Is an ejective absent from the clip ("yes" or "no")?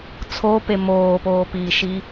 yes